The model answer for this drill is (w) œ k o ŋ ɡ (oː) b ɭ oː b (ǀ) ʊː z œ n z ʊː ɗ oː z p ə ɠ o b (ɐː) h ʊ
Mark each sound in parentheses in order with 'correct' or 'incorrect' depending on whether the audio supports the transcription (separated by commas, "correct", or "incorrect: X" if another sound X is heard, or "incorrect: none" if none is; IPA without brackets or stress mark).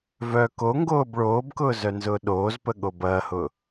incorrect: v, correct, incorrect: k, correct